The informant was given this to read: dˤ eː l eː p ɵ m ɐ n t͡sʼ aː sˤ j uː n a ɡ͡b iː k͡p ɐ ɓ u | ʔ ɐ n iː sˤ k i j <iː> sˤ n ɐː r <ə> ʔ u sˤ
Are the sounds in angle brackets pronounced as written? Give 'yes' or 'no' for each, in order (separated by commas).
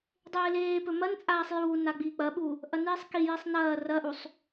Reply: no, no